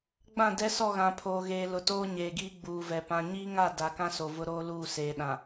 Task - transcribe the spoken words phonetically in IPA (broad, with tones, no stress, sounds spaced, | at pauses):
ɡ͡b ã˦˨ d ɛ˦ s ɔ˦˨ ɣ ã˨ pʰ oː˨ ɣ eː˨ l ʊ˨ t oː˦ ɲ eː˨ ɡ iː˦ ɡ͡b uː˨ v ɛ˨ p ã˨ ɲ iː˦ ŋ a˦˨ d a˨ k ã˦ s o˨ v ʊ˦ ɾ oː˦ l uː˦˨ s eː˨ ɗ ã˨